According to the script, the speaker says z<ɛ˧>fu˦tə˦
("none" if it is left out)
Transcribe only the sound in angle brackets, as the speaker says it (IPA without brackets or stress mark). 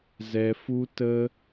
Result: ɛ˧